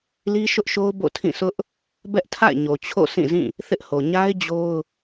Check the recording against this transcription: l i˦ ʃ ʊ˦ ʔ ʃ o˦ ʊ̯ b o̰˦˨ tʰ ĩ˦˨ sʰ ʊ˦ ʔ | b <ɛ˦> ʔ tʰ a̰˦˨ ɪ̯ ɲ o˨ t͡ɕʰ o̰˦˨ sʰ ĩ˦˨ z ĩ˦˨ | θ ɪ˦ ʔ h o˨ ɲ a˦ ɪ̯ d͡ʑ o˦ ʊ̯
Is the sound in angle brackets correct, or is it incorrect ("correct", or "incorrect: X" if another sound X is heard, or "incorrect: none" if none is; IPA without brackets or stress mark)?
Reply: correct